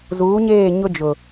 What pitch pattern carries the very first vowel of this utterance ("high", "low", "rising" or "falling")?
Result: rising